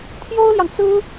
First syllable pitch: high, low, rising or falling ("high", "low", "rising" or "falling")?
high